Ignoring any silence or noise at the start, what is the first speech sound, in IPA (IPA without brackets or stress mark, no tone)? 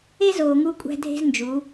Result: e